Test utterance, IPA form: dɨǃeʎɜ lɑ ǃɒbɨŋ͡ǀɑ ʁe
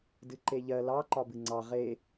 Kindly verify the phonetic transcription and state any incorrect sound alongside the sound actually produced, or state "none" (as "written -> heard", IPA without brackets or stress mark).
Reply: none